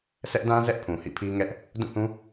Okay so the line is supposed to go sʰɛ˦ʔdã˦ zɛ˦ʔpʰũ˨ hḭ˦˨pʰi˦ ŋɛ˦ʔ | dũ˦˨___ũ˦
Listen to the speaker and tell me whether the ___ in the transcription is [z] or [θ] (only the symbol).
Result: θ